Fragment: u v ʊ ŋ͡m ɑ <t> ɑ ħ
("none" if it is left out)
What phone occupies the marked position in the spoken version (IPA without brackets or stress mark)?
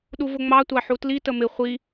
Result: tʷ